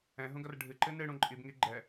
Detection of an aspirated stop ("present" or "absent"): absent